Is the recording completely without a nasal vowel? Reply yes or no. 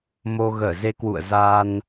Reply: yes